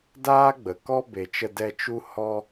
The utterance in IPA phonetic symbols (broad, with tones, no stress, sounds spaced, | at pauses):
d aː˦ ɡ͡b ə˨ k ɔ˦ b e˨ t͡ʃ ə˧ d ɛ˧ t͡ʃ u˦ h ɔ˦